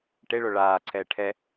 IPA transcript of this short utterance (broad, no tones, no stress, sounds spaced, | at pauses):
ʈ e ɭ o ɭ aː ǀʰ ɛː ʈʰ ɛ